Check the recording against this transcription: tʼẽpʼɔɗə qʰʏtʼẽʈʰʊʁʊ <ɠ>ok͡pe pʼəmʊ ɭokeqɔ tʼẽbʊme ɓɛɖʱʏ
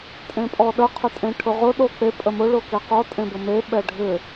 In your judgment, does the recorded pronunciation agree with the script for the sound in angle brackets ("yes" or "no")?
no